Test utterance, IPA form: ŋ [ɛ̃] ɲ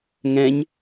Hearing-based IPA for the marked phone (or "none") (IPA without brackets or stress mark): ɛ̃